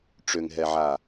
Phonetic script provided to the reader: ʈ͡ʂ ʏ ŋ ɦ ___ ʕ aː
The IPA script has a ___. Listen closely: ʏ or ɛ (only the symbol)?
ɛ